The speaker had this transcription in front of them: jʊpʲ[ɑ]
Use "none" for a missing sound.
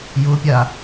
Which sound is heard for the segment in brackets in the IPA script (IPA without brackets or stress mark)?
a